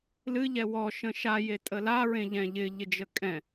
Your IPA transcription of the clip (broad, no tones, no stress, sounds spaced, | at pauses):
l ɨ ʎ ɛ w ɔ ʃ ə̃ ʃ a j e tʼ ə l a ɹ ẽ ʎ ɛ̃ ʎ ɪ ʎ ɪ d͡ʒ ə kʼ ɛ̃